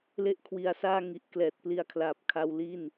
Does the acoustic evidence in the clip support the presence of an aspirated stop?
yes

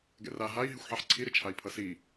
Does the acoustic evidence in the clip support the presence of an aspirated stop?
yes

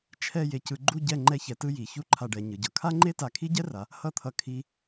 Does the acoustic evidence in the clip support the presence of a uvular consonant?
no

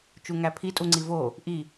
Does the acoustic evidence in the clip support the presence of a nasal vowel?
no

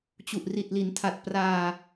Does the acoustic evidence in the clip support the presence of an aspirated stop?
yes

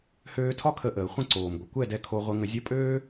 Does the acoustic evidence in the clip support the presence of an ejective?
yes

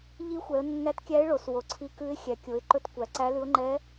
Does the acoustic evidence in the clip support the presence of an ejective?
no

